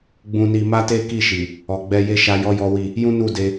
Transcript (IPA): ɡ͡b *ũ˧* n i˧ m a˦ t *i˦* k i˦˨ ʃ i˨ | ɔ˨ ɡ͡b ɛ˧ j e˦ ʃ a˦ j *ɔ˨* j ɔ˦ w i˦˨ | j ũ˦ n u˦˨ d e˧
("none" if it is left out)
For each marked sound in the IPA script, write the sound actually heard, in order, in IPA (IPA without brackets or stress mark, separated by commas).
ũ˧, e˦, ɔ˦